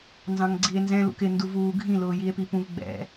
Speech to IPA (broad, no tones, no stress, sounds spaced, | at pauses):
n z ɑ̃ ŋ ɡ͡ǀ i e̯ n z ɛ̃ l ṵ k ɪ n d u v uː ɡʱ ĩ l ʊː j i e̯ p i p ũ v ɡ͡b ɛ̰